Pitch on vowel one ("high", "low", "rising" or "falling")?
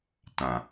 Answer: low